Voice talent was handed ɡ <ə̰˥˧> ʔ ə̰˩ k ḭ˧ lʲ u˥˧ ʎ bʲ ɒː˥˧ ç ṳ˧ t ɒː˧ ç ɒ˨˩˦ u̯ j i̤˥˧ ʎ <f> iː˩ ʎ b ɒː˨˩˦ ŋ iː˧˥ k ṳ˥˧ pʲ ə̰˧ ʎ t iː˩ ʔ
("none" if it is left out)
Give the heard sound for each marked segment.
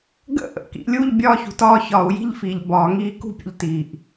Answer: ə̰˥˧, f

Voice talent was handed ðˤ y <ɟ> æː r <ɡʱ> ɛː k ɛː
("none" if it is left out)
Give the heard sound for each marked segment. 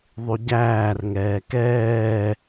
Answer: ɟ, ŋ

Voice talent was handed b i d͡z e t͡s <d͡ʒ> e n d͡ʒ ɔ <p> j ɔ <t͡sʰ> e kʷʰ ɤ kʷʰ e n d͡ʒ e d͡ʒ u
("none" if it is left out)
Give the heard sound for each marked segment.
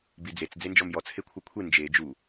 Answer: d͡z, m, t͡sʰ

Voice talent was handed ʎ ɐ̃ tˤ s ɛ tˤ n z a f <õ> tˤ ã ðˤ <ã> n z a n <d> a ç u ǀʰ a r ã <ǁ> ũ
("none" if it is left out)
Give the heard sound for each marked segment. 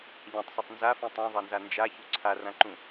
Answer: ũ, a, d͡ʒ, ǃ

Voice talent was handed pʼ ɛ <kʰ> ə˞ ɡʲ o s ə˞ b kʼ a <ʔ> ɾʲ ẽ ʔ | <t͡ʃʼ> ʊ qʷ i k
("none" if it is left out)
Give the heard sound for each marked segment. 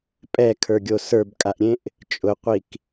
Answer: kʰ, ʔ, t͡ʃʼ

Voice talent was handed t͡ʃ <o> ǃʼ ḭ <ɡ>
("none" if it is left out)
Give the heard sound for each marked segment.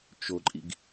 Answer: o, ɡ

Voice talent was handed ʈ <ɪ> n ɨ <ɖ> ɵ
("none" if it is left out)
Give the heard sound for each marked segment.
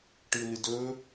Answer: ɨ, d

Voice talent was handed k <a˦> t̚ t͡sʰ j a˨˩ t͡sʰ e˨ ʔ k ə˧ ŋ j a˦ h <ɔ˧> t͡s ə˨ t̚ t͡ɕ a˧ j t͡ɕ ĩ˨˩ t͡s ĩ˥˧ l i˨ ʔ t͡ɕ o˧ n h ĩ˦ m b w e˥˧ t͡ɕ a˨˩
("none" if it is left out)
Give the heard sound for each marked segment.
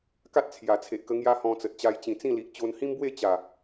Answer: a˦, ɔ̃˧

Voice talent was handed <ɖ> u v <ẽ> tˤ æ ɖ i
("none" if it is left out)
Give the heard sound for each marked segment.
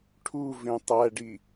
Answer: ʈʰ, ẽ

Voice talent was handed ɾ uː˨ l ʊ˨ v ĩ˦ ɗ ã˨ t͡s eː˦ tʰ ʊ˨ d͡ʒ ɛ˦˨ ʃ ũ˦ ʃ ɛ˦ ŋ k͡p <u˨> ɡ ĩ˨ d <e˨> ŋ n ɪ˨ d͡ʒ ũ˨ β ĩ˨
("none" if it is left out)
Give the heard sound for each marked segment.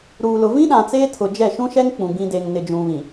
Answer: ũ˨, e˨

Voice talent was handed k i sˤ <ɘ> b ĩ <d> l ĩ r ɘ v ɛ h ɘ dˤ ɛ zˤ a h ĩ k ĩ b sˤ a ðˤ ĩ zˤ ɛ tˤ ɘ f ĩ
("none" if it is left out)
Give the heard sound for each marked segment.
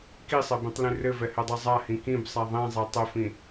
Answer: ɛ, tˤ

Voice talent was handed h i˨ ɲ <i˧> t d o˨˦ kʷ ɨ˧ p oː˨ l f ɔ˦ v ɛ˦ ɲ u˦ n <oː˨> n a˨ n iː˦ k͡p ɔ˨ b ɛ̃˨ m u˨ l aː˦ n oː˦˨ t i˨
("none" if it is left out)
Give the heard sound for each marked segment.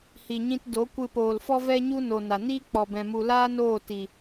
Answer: ĩ˧, o˨

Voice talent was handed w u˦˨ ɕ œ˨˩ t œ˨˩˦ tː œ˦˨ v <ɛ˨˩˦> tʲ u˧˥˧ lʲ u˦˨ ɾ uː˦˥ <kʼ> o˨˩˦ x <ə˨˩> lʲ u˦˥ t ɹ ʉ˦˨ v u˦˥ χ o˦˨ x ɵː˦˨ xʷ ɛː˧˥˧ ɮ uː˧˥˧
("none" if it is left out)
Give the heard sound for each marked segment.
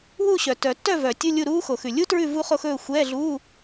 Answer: œ˨˩˦, x, ʉ˨˩

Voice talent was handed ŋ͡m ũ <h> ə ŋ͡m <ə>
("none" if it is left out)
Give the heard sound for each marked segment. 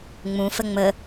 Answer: f, ə

